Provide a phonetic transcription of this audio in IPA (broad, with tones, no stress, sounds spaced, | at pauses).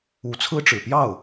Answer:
u˧˥ t͡sʰ ɹ̩˥ ʈ͡ʂ ɻ̩˨˩ p j ɑ˥˩ ʊ̯